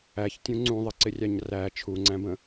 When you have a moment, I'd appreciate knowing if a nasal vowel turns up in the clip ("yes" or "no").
yes